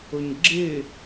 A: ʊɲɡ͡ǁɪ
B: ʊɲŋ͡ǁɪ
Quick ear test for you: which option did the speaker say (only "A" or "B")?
A